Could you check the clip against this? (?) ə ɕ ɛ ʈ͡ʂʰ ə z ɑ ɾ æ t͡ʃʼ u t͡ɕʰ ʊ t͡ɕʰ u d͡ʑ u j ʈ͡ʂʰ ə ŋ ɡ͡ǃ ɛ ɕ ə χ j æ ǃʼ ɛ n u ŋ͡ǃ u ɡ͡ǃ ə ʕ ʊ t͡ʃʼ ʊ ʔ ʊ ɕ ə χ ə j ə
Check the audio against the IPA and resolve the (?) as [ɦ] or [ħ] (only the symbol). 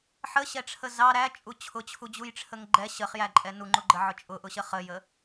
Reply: ħ